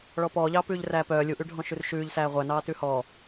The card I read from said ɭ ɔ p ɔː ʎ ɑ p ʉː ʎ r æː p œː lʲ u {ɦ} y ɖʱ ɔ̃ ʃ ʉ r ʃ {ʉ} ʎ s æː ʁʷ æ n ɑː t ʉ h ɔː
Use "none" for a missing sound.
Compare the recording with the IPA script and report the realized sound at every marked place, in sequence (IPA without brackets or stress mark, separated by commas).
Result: ʔ, ʉː